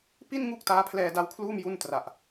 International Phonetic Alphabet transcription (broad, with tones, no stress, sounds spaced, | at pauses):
p i˥˩ n ŋ u˦˥ k̚ t aː˦˥ pʰ l ɛː˧ d a˦˥ w kʰ l uː˥˩ m j u˥˩ n t r a˨˩ ʔ